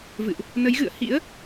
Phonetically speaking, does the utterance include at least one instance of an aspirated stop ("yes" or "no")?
no